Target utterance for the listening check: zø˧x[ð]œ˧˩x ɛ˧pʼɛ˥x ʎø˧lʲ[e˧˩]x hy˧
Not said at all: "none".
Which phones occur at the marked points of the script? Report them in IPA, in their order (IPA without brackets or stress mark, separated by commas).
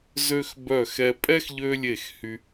b, e˧˩